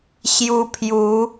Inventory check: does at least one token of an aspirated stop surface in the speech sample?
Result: yes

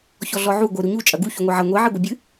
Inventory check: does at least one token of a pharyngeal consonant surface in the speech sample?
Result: yes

